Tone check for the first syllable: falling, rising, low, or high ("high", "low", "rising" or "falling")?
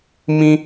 high